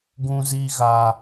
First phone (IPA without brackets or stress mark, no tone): ɡ